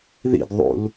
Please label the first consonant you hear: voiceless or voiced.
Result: voiced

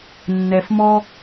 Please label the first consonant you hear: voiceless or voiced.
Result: voiced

